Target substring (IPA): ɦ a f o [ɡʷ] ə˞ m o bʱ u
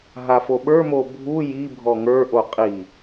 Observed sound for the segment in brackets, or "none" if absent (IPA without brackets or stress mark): ɓ